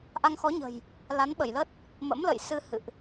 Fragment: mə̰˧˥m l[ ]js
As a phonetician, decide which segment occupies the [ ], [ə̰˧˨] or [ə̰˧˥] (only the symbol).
ə̰˧˨